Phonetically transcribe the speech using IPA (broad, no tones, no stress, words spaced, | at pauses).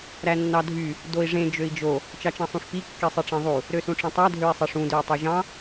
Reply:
ɾænːɑdʱy | doi̯ʐẽ d͡ʒøi̯d͡ʒo | t͡ʃɑt͡ʃɑ̃sˤũʂpi kːisˤiʈ͡ʂẽðˤu | ɾøsũʈ͡ʂẽtˤæ dʱøi̯sˤeʂũ døy̯tˤoʒɑ̃